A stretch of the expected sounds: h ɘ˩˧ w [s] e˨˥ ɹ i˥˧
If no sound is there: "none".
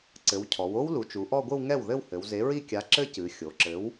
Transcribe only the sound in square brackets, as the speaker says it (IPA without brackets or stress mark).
z